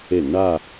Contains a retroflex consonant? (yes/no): yes